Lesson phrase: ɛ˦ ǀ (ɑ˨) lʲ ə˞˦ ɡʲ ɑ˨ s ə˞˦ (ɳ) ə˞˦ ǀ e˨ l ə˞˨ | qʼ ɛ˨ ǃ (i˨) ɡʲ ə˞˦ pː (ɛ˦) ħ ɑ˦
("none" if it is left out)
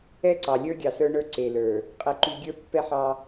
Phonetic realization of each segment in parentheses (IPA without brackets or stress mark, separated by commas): ɑ˨, ɳ, y˨, ɛ˦